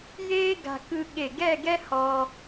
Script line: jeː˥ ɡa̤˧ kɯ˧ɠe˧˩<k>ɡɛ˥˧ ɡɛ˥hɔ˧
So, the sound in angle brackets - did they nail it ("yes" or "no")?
no